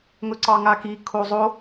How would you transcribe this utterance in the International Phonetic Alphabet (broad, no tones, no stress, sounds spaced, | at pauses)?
ŋ ɵ ǀ ɑ ŋ a k i kʰ o zˤ o